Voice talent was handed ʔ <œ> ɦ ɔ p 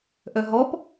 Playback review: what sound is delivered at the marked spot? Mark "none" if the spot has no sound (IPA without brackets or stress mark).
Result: œ